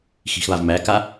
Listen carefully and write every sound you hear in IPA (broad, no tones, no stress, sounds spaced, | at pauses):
x i̤ x β a v m æ k a